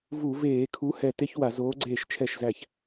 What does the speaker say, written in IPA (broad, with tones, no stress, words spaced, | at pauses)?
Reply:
vu˧˩˧ veː˧˩˧kʰu˨˥ hɛ˧˩ te˥ç wa˧˩˧zoː˨˥ ɡ͡ǀeː˧˩ʃt͡ʃʰɛ˧˩ʃzæ˧˩ç